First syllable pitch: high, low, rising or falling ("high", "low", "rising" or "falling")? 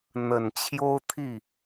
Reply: low